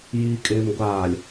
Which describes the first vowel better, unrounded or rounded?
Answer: unrounded